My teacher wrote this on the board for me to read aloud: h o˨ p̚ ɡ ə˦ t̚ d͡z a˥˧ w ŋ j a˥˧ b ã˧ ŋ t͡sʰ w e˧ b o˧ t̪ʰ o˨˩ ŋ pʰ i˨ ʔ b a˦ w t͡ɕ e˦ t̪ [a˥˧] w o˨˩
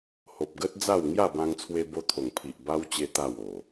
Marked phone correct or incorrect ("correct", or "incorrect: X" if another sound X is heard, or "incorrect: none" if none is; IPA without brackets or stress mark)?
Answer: correct